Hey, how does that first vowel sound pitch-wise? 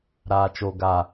low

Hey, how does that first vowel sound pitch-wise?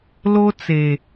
high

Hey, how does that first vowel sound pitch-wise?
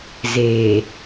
low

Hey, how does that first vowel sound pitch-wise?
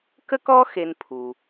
high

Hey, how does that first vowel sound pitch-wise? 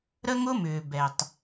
high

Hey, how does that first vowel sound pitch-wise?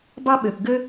high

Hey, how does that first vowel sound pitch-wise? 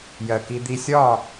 low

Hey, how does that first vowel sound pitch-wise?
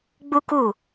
high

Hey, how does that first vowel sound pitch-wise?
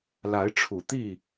rising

